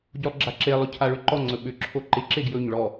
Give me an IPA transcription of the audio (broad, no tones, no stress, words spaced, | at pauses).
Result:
ɟolˠɡ͡ǁaǁe lˠɵcʰaɭʏǃɔ ŋ͡ǀɵɓʏ ǁʰoǃɪ ǁeɡjɵɲ ɭɔ